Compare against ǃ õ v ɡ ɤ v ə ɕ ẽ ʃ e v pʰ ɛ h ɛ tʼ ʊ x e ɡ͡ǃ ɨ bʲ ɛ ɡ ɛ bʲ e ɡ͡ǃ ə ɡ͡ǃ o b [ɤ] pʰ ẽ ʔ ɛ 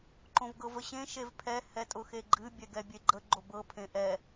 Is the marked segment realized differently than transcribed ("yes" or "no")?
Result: no